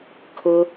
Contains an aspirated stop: yes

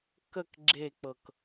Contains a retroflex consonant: no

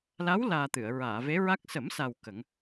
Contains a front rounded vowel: no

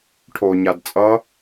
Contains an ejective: yes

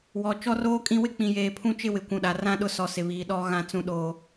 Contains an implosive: yes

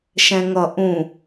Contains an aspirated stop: no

